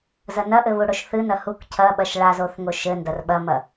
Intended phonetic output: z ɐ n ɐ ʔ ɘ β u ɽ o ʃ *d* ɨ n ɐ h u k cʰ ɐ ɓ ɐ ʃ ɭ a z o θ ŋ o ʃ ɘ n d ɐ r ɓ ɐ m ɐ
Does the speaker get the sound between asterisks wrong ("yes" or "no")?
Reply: yes